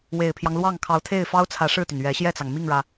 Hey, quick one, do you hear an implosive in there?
no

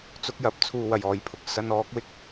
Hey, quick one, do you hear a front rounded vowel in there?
no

